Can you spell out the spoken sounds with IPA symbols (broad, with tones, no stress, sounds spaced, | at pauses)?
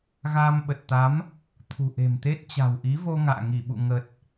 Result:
ɣ aː˧ m ɓ ə˨˩ t̚ t̪ a˨˦ m | t̪ʰ ṳ˨˩ ʔ e̤˨˩ m t̪ e˦˥ t̚ t͡ɕ a̤˨˩ w ʔ i˨˦ v o˧ ŋ a̰ː˧˨ ŋ i˧˩ ɓ ṵ˧˨ ŋ ə˨˩ t̚